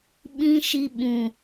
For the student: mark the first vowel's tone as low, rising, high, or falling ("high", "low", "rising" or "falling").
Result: high